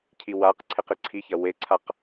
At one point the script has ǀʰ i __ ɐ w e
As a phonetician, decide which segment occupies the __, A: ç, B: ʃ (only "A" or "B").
A